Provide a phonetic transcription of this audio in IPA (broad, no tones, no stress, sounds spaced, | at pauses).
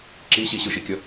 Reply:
ǁ i ɕ i ɕ ɯ ʃ i kʲ ʌ